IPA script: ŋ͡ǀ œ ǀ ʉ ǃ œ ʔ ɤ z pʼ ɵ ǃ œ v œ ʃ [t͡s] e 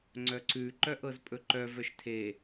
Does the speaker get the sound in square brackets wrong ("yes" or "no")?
yes